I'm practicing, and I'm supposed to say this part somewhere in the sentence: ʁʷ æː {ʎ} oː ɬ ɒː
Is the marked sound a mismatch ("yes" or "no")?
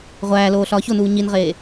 yes